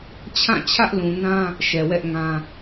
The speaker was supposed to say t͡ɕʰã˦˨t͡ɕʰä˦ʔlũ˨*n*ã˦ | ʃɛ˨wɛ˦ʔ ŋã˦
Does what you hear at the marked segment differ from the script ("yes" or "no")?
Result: no